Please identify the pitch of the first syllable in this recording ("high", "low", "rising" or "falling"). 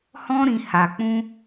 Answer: high